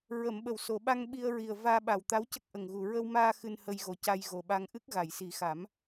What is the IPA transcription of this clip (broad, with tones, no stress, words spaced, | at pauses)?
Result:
ɹə˨˩˨mɓə˨˩˨w so˨˩˨ɓa˧ŋɓi˧ə̯ ɹi˨˩ə̯ vaː˧ɓa˨˩w t̪a˧˥wcə˦˥k̚ ʔə˨˩ŋɣu˨˩ ɹə˧wmaː˧ xɨ˧nhə˧jɣo˨˩ ca˧jɣo˨˩ɓa˧ŋ ʔɨ˦˥k̚ɣa˨˩˨jsi˨˩˦xa˨˩˦m